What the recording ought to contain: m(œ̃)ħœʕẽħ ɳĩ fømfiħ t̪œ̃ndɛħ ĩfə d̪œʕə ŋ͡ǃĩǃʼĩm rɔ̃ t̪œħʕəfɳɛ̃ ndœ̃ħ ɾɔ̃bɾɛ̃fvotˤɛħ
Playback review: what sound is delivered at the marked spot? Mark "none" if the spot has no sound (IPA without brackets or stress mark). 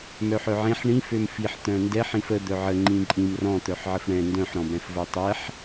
œ